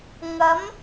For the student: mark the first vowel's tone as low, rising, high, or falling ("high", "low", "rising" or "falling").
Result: rising